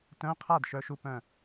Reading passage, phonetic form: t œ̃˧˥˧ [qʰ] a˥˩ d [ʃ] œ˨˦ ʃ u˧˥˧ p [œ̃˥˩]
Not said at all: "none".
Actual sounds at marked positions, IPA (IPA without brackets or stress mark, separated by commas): qʰ, ʃ, œ̃˥˩